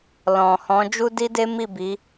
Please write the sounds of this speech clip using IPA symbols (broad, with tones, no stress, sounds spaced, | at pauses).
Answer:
l ɔ̃˨ h ɔ̃˨˦ d͡ʒ u˦ d i˦ d e˦ m i˦˨ b i˨˦